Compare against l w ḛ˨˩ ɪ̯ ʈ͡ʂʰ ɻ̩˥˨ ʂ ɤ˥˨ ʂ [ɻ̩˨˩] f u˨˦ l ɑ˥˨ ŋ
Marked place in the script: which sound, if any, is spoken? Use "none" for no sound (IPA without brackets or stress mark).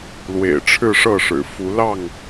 ɻ̩˨˩